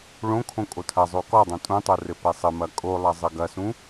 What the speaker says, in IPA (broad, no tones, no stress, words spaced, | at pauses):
ɭõkʰõ kʼotʰɐzˤo kɔdˤõ tʼũtˤo rɘpɛsˤɘmɐ kʼolˠɐ zˤɘɡɐsũ